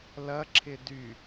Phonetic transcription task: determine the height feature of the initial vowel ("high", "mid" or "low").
low